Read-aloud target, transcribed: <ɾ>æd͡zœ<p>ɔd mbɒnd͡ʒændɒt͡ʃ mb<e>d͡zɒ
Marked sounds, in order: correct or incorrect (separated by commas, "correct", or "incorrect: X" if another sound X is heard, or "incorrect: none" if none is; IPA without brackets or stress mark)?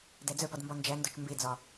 incorrect: d, correct, correct